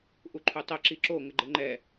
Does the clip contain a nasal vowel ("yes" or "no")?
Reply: no